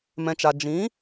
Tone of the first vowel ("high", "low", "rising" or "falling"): low